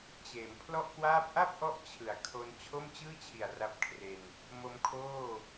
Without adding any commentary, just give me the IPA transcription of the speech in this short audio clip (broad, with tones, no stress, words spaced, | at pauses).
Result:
t͡ɕeː˩˦mpʰlɔ˥˩ʔkwaː˥˩p̚ ʔa˥˩p̚ʔɔ˦˥ʔ t͡ɕʰɯ˨˩a̯ kʰo˧n t͡ɕʰo˥˩mt͡ɕɯː˥˩t͡ɕʰi˨˩a̯ ra˦˥p̚kʰre˧n | mo˦˥mkʰoː˥˩